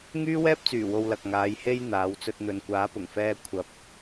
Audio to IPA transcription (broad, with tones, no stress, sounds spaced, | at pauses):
ŋ yː˥ w ɛː˥ p̚ t͡s yː˨˩ w o˨ w l ɐ˨ k̚ ŋ aː˨˧ j h e˧ j n̪ aː˨˧ w t͡s ɵ˧ t̚ n̪ ɵ˨ n kʷ aː˨˥ p ʊ˨˩ ŋ f ɛː˧ kʷʰ ɐ˨˥ p̚